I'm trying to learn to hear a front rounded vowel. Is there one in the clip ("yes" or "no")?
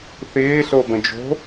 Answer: no